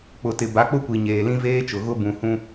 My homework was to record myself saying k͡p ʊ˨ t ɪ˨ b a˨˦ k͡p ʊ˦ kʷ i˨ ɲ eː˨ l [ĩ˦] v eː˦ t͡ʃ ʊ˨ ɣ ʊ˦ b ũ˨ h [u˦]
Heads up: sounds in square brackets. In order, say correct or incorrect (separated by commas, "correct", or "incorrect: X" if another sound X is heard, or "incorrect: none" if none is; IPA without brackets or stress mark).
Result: correct, incorrect: ũ˦